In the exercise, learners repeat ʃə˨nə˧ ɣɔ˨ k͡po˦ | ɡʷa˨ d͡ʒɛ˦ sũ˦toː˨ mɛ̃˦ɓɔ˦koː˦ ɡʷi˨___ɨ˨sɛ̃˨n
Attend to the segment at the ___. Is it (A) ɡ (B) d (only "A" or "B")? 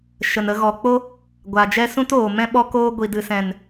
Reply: B